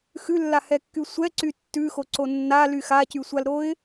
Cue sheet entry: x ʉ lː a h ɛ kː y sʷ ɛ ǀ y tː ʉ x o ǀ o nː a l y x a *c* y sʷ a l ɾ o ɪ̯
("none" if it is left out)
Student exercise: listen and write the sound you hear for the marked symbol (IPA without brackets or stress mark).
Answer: c